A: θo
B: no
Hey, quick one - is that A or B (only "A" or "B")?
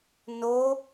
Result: B